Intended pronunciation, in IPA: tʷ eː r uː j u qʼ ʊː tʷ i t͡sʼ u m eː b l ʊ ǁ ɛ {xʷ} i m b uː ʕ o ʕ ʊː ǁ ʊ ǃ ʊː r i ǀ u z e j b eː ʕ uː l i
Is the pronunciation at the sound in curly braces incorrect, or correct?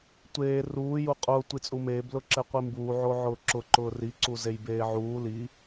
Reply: incorrect